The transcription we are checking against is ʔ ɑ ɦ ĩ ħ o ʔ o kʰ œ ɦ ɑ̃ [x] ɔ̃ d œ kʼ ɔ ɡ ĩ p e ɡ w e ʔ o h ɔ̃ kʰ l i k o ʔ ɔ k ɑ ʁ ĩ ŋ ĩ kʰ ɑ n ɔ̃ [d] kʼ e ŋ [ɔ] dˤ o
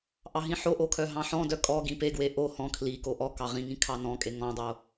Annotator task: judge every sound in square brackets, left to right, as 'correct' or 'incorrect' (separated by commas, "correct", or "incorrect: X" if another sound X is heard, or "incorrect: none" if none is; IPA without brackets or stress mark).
incorrect: ħ, incorrect: none, incorrect: ɔ̃